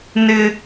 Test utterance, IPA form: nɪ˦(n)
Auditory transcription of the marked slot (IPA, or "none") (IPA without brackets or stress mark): none